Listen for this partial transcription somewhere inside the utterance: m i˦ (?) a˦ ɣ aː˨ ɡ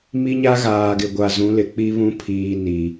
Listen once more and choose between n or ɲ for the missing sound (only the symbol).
ɲ